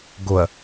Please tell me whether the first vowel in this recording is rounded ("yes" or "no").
yes